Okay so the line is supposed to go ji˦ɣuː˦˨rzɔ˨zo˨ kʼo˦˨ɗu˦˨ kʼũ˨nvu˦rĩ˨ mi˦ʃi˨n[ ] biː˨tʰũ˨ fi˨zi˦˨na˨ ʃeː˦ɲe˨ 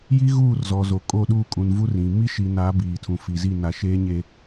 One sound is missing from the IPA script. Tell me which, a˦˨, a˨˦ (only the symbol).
a˨˦